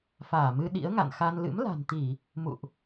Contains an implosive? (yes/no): yes